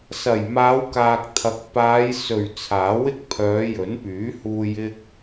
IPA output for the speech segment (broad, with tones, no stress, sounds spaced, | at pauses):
s ɐ˨˩ j m aː˨˧ w k aː˨ k̚ t̪ʰ ɐ˨ k̚ p aː˨˧ j s ɵ˨˩ ɥ t͡sʰ aː˨˥ w ɪ˨ k̚ pʰ œː˨˧ j ɵ˨˥ n p yː˨˥ h uː˨ j ɪ˧ k̚